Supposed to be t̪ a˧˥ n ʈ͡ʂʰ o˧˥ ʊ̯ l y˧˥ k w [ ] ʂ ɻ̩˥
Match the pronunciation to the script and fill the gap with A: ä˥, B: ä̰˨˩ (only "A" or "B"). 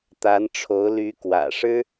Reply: B